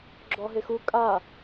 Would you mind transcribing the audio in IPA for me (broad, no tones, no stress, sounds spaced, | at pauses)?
ɡ͡ǁ ɔ ɦ e x u kʼ a